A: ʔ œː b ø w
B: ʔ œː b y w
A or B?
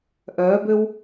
A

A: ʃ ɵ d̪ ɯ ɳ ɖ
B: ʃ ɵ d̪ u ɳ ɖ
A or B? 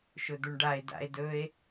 B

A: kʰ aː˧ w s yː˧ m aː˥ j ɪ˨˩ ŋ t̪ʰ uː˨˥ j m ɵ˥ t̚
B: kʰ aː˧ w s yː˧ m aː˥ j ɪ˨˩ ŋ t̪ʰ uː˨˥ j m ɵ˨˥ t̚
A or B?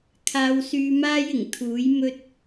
A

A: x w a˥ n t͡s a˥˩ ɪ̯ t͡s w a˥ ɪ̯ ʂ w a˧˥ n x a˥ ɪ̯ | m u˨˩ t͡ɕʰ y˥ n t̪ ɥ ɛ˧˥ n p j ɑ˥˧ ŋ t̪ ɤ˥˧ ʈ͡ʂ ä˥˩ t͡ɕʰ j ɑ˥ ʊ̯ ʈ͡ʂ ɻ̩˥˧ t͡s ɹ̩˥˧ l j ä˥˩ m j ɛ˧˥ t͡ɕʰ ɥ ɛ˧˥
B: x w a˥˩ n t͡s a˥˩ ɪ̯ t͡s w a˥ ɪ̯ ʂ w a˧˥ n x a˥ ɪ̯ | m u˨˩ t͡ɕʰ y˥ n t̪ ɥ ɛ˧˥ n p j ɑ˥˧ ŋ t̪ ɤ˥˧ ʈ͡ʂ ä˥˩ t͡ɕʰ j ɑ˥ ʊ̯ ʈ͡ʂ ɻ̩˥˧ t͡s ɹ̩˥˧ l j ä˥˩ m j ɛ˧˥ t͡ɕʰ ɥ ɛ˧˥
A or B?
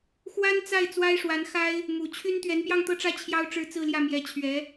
A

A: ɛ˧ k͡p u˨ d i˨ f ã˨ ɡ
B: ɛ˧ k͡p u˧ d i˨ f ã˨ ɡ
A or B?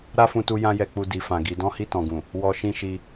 B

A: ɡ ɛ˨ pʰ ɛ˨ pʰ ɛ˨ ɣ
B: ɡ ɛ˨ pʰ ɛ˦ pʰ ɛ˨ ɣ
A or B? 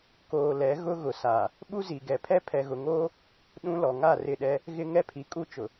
B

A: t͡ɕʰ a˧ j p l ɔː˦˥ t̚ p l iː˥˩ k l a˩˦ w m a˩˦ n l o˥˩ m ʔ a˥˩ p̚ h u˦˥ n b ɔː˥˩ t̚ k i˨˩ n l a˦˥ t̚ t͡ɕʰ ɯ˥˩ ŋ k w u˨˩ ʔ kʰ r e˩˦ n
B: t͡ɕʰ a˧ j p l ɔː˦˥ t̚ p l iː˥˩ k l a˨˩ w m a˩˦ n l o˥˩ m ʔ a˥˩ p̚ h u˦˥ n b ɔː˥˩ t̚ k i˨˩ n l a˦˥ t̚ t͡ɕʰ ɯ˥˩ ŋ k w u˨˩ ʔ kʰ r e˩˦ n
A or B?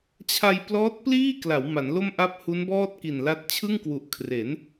A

